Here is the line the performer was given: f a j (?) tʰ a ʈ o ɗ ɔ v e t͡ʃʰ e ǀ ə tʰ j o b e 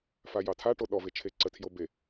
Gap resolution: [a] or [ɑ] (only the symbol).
ɑ